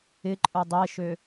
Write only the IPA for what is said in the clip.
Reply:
ɪǃʼʊ dˤeʃø

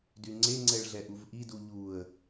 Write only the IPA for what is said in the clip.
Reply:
dyŋ͡ǀe ŋ͡ǀɛɭɮɛʔuvʔi duʎuə̯

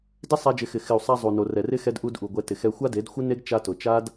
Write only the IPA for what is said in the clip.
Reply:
dɪ˦ sˤa˧d͡ʒɪ˨˦xɪ˨ xɪ˨u̯sˤa˧ zˤu˨no˨rɛ˨rɪ˦ xɛ˦dʔu˦dʔu˨ɡʷɛ˧ tɪ˨xɛ˧ xʷa˦de˨˦dxʷɪ˦ne˦ɡ t͡ʃa˦tʊ˨ t͡ʃa˦d

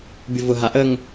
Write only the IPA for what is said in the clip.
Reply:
bʲʊvʊɦa ʔəŋ

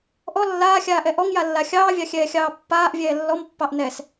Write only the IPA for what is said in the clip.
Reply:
ʔɔ lːaːxʲaːʔɛ ʔɔŋjalːa xʲɑːvʲɑxʲɛːxʲɑː pːaːʔvʲɛː lːɔmpːɑʔ nɛs

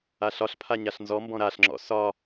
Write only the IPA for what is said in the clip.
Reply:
aɬɒɬpʰa ɲaɬnzɔmbɔ̃ ɾaɬŋ͡ǁɔ̰ sɒ

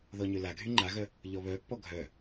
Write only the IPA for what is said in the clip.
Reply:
ðɔɲølaɡʱy ŋ͡ǃaɣœ | ʎɔβœpːɔ ɡʱœ

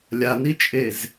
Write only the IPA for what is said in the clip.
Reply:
lʲanit͡ʃʼez

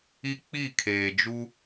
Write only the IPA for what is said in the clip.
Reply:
i˦k͡pi˦˨ kʰeː˨d͡ʒu˦

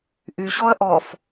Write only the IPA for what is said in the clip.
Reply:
ʔyɕɔɐ̯ ʔɔf

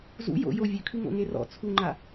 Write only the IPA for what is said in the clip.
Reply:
zṵ jo̰ jo vʲʉkʰʉ ŋo̰ŋerɔ̰ t͡sʰuŋ͡ǃa

